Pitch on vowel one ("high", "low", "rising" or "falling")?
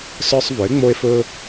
high